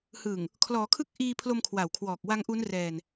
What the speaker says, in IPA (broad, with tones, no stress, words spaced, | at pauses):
hɯ˨˩ŋ | kʰlɔː˩˦kʰɯ˦˥k̚ʔiː˧pʰlo˧m kʰwa˨˩w kʰwɔː˨˩k̚wa˦˥ŋʔuː˦˥nrɛː˧n